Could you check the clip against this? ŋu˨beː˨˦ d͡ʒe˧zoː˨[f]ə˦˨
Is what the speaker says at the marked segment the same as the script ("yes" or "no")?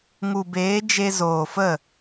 yes